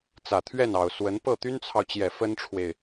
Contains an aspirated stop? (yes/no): yes